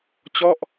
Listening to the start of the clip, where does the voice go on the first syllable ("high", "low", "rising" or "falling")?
falling